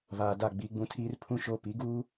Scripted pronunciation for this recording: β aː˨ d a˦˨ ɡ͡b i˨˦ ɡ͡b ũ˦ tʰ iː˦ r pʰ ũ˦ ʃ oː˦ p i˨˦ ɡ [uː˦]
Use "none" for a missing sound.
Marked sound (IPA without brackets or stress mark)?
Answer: uː˦